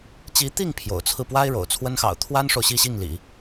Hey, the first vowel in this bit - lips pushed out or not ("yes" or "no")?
no